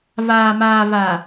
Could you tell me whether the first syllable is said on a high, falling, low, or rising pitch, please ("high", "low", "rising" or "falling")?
low